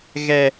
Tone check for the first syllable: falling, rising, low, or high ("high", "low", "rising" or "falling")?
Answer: low